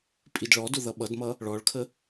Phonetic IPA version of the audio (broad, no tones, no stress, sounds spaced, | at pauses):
pʼ i d ɭ ɔ d ʊ ð ʌ ɓ ʌ d m ʌ | ɭ ɔ ɭ kʰ ə